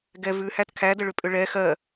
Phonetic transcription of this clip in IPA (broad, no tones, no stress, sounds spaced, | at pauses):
ɡ ɛ v ʉ h æ t kʰ æ d ə ɭ ʏ pʼ ʏ ɭ ɛ x ɜ